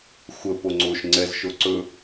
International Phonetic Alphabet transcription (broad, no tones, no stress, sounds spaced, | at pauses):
xʷ ə p o ŋ͡ǀ o ʃ ŋ͡ǀ ɛ z ʃ o ǀ ɵ